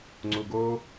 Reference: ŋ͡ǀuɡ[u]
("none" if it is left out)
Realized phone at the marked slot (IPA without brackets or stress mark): o